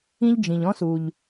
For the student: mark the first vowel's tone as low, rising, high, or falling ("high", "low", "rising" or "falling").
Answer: high